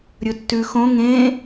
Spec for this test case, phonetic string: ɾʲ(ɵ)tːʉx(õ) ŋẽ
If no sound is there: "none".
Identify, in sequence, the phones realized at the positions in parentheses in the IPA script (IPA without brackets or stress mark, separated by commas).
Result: ɵ, õ